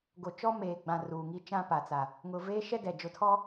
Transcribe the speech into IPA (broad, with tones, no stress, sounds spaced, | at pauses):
ɡ o˨ t͡ʃ ɔ˦ m eː˨ ɡ͡b ã˨ r uː˨ ŋ i˦ t͡ʃ ã˦ p a˨ t͡s a˨ | ŋ ʊ˨ v eː˦ ʃ ɛ˦ d ɛ˨ d͡ʒ ʊ˨ tʰ ɔ˦